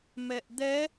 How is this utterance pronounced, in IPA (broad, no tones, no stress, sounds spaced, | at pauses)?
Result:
m ɛ ʔ d̪ ɛ